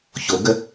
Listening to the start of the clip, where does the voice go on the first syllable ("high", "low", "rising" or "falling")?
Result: rising